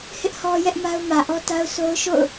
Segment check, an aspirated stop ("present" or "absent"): absent